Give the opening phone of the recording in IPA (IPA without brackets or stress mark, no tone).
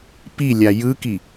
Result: p